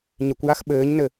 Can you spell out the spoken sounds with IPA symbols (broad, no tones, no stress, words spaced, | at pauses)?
ɲɪkʷjax ɓɘːɲnɘ